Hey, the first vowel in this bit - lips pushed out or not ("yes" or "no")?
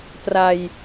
no